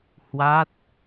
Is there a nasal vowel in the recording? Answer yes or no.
no